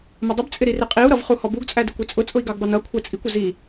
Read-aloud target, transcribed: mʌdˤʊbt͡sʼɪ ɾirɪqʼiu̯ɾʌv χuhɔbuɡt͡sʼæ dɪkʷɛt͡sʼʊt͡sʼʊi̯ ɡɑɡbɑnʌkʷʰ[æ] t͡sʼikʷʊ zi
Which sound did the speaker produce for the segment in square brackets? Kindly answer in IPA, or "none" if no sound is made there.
æ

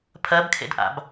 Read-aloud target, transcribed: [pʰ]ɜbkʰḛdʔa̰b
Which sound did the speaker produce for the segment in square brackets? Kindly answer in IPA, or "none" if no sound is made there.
pʰ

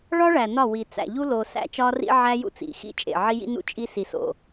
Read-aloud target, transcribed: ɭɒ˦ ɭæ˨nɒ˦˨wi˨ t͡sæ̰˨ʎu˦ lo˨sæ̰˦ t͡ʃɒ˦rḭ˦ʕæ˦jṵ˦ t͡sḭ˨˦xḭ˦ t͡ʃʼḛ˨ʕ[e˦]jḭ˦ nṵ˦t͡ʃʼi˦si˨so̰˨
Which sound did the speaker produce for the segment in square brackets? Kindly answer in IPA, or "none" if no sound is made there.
i˦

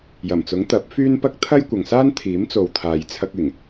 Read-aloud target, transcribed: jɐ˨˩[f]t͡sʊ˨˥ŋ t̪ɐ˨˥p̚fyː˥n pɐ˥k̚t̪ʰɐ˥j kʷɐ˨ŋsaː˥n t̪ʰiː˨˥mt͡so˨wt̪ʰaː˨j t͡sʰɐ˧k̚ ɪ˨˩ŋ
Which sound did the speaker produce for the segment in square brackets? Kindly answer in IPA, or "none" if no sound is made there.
m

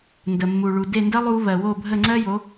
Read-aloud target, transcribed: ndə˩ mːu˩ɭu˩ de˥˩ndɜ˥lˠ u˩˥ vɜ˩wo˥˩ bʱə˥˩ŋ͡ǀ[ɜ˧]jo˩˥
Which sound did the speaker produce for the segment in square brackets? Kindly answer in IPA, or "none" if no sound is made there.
ɜ˥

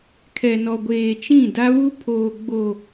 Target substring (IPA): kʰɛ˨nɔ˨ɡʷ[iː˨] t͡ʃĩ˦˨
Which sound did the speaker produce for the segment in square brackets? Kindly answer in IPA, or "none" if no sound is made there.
eː˨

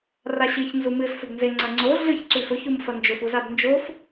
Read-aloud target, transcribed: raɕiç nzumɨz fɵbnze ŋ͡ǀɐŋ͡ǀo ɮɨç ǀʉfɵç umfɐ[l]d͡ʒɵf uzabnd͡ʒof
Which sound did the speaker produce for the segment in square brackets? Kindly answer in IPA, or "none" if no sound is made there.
n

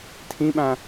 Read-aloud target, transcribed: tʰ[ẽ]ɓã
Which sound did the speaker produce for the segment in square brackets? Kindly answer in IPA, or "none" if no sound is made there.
ĩ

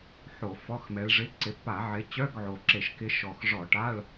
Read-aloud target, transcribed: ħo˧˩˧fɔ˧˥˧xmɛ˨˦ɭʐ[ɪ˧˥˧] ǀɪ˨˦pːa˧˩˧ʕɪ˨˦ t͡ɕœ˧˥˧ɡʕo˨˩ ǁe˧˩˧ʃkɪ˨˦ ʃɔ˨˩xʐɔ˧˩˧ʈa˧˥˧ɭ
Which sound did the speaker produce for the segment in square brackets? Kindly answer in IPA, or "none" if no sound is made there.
ɪ˧˥˧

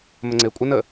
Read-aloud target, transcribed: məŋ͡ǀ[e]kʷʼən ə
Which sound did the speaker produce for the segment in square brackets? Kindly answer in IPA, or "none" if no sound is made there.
e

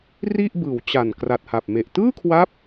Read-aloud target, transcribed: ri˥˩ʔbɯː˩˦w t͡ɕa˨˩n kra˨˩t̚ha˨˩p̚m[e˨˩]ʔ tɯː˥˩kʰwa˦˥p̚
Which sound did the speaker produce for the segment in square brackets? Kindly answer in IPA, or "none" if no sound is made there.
e˨˩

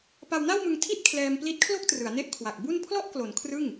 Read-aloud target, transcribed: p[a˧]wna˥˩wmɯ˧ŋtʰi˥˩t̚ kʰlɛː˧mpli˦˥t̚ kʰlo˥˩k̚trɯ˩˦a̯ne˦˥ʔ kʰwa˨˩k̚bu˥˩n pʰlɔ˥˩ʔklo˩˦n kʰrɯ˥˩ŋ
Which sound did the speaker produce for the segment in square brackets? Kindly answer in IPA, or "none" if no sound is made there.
a˧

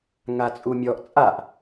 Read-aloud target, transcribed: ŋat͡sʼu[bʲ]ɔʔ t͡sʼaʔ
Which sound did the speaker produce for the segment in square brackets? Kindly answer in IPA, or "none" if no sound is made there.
mʲ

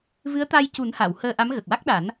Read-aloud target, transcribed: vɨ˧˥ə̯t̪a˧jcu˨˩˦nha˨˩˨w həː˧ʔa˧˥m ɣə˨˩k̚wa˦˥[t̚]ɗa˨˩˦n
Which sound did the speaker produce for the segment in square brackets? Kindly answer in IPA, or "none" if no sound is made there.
k̚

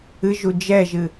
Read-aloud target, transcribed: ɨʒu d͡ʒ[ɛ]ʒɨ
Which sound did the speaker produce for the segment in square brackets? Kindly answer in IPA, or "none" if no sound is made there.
ɛ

